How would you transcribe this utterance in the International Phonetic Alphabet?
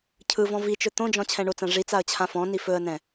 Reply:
cʰ ɯ v ɔ̃ v i t͡ʃ ɵ t̪ õ d͡ʒ ɔ̃ t͡ɕʰ ɛ̃ ɳ o t͡s ã ʐ i t͡s a ə̯ t͡ɕʰ ã f ɔ̃ n i f ɵ ə̯ n ɛ̃

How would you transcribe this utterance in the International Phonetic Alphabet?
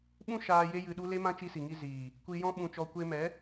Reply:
ɓ ũ˦ ʃ aː˧ j e˦ j ɨ˧ ɗ u˦ l e˦ m ã˦ t͡ʃ i˧ s i˨ ŋ i˧ z iː˨ | kʷ i˧ j ɔ̃˦ ɓ ũ˧ t͡ʃ ɔ˧ kʷ e˧ m ɛ˨˦

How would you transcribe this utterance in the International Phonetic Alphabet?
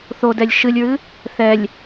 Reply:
θ o d ɛ lʲ ʃ ɨ lʲ ɹ ɨ | θ ɛ lʲ

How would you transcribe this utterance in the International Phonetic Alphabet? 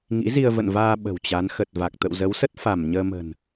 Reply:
ŋ ḭ˧˥ z i˧ ə̯ v ə̰˧˨ n v aː˧ ɓ ə̤˨˩ w t͡ɕ a˨˦ n x ə˨˩ t̚ v a˨˩ k̚ t̪ ə̰˧˨ w z ə˨˦ w s ə˦˥ t̚ f a˧˩ m ɲ əː˧ m ə̤˨˩ n

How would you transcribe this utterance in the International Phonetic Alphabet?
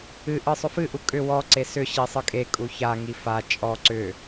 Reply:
ɨ ʔ ɨ sˤ ʏ f ɨ ʔ u kʼ ʏ w ɔ ǀ e s ʏ ɕ i sˤ ɨ kʼ e kʼ u ç a ŋ i f a t͡ʃʼ ɔ ǀ ʏ

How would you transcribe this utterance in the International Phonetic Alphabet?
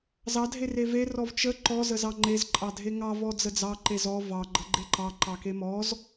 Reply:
z ɑ dʱ e r e v e r ɔ v t͡ʃ ə ǃ ɔ z ə z ɑ ŋ͡ǃ e z ǃʼ ɑ dʱ e ŋ ɑ v ɔ d͡z ə d͡z ɑ ǃ e z ɔ v ɑ ɡ͡ǃ ə ɡ͡ǃ e ǃ ɑ ǃ ɑ k e m ɔ z

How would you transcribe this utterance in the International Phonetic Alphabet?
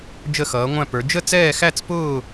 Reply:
d͡ʒ ə˥˧ x ʌː˧˥ ŋʷ æ̃˥˧ p ə˞˧˥ d͡ʒ ə˥˧ t͡s ɛː˥˧ x æ˥˧ t͡s p ʊː˥˧

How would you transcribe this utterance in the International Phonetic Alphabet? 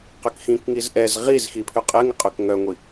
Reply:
q ʏ k x ĩ k ŋ i z ʔ ɛ z ʁ i z x i pʰ ʏ qʼ ɪ ŋ ɪ qʼ ø k ŋ œ ŋʷ i

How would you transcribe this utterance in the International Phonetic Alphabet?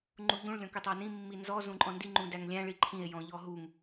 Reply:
ŋ͡ǃ u ʎ ũ ɭ lʲ ɔ̃ k ø tˤ ɑ n ĩ mː i n z ɔ z ũ ǃʼ ɔ̃ n d i ŋ͡ǃ ũ d æ ŋ lʲ æ̃ ɭ i ǃʰ ĩ e̯ j ɔ̃ ʎ ɔ ɦ u ŋ

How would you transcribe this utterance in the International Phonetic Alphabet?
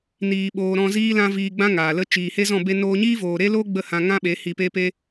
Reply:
n iː˨ ɓ oː˨ ɾ ɔ̃˧ z iː˦ l ã˧ v iː˧ ɡ͡b ã˦ ŋ aː˨ l ə˦ t͡ʃ iː˨ h e˦ z ɔ̃˦˨ b e˧ n oː˧ ɲ iː˦ v oː˨ ɾ e˦ l o˦ ɡ͡b ə˦˨ h ã˧ ŋ ã˦ ɓ e˨˦ h i˧ p e˦ p e˦

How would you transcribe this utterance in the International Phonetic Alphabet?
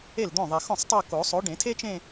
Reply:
e˥˩ l d̪ õ˥˩ ðˤ e˨ x õ˥˩ sˤ tˤ o˥˧ k o˨˩˦ sˤ o˨˥ ɖ ẽ˨˩˦ tʰ e˥ t͡ʃ ẽ˥˧

